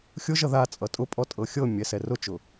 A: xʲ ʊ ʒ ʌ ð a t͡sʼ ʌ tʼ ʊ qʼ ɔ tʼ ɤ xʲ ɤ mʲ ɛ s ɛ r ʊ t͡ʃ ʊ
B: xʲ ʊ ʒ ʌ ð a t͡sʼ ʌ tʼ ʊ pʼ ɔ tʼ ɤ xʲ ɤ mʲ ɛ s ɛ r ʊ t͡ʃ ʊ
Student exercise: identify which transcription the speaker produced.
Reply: B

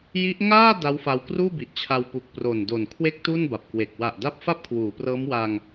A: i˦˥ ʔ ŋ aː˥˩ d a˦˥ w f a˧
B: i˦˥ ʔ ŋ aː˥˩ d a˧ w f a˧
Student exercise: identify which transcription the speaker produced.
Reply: A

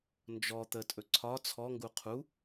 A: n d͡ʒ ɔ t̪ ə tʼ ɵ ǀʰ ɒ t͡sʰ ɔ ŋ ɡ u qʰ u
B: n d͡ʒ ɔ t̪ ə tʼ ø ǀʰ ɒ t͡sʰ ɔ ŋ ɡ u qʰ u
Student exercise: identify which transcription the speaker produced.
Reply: A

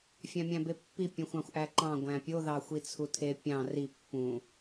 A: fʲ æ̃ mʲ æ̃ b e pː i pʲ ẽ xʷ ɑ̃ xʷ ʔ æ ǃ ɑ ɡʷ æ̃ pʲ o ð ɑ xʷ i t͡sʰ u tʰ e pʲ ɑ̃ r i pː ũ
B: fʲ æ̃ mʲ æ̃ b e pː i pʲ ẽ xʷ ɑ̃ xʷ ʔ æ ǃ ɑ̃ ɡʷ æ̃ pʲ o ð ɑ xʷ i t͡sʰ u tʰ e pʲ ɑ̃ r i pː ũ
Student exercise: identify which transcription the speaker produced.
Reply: B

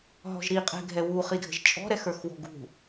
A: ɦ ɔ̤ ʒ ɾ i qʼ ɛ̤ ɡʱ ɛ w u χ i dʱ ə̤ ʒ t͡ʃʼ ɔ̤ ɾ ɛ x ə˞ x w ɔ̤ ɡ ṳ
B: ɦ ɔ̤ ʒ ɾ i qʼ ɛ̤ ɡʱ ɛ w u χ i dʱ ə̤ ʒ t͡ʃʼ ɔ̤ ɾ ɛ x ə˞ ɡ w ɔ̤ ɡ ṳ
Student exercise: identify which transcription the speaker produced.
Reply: A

